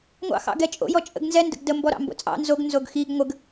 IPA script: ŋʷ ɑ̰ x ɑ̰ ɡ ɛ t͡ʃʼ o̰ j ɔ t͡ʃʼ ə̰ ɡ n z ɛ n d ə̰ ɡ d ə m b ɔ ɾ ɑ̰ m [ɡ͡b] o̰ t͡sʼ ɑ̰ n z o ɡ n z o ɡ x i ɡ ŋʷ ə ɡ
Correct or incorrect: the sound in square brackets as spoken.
incorrect: b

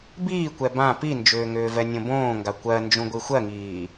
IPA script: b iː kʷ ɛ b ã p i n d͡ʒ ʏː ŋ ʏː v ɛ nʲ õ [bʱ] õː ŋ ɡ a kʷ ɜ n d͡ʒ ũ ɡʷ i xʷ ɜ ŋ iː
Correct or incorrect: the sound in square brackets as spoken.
incorrect: b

